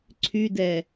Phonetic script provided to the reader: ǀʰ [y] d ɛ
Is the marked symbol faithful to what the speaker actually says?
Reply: yes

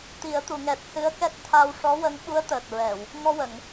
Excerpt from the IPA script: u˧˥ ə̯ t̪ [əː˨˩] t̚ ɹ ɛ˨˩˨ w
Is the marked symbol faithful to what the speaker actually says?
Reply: yes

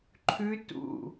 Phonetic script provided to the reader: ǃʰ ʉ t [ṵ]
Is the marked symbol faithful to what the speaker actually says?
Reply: yes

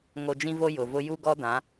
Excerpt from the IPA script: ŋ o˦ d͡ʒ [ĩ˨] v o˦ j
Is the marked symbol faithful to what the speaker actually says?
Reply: no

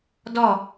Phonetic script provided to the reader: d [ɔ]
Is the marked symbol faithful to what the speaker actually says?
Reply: yes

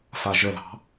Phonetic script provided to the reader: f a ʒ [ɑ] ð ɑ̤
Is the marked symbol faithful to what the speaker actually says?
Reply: no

